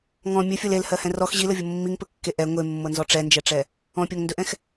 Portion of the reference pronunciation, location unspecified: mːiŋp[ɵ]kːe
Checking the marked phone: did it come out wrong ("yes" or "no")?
no